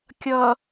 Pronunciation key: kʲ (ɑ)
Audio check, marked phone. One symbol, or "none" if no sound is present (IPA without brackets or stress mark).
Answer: ʌ